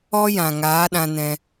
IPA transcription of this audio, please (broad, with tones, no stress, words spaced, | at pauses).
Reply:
ɔ˦jã˨ ŋaː˨˦ɗã˧nɛ̃˧